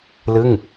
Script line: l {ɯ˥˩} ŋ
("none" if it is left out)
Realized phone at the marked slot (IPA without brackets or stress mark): ɯ˥˩